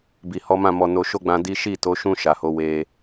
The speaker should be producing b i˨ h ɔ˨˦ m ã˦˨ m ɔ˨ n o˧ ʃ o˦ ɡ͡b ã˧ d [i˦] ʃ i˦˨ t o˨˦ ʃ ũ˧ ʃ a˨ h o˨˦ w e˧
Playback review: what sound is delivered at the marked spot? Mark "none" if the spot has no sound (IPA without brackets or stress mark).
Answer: i˦